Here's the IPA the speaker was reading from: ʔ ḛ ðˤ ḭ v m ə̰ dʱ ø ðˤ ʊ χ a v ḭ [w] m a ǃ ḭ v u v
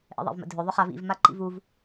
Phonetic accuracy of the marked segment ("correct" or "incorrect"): incorrect